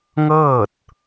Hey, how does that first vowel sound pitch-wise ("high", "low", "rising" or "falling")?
falling